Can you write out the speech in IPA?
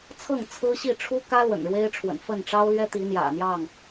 t͡sʰ ɤ˥˨ ŋ t͡sʰ ɹ̩˦ ɕ i˥˨ ʈ͡ʂʰ u˦ k ä˦ l w ə̰˨˩ n ɻ w e˦ ɪ̯ ʈ͡ʂʰ w ə̰˨˩ n f ə˥˨ n ʈ͡ʂ ɑ˦ ʊ̯ l ɥ ɛ˦ t̪ i˨˦ n̪ j ä̰˨˩ n̪ j ɑ˥˨ ŋ

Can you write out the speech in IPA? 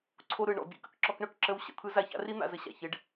ǀʰ o˧ ɾ ɯ˨ ɳ ɔ̰˨ bʲ ə̰˦ k ə̰˧ k ǁ ɔ˧ k ɳ œ˨ k ǁ ə˦ w ɕ ə̰˧ t̪ʰ ɯ˦ z a˧ ç a̰˦ r i˦ n̪ a̰˨ z ə˦ ɕ a̰˨ ç ɪ˨˦ ɖ

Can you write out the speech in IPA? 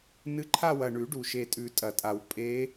n ɨ˧˥ ǃʰ a˥˧ w ɐ˨˩ ɳ ʉ˨˩˦ ɖ u˨˩ ʃ e˨˩ tʼ ʉ˨˩˦ tʼ ɐ˨˩ tʼ a˨˩˦ w pʼ e˧˥

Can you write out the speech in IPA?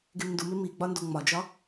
ɡ e m n d u m e m i ɡ͡b ɒ n d o ŋ͡m ɒ d͡ʒ ɒ

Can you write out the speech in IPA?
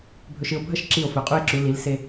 bʱ ɵ˧ ʃ ɨ˧ o̯ bʱ ɐ˥˧ ʃ ǁ i˧˩ o̯ f ɵ˩˧ qʼ u˧ e̯ ǁ u˩˧ l i˩˧ l s e˧

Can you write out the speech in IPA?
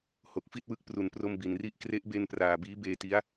h o˨˩ k̚ f i˥˩ t̚ w ɯ˦˥ k̚ p r u˨˩ n p r o˧ m b i˨˩ n r i˥˩ ʔ k r e˦˥ ʔ b e˧ n p r aː˨˩ b iː˦˥ b eː˧ t i˦˥ a̯

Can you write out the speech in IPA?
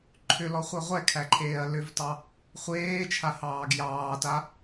ǃʰ ʏ l ɔ χʷ ɛ ʁʷ ɛ kʰ æ ǃʰ eː ɐ̯ l ʏ v t ɑ | χʷ eː t͡ʃʰ a h ɑː ɡ j ɑː t a

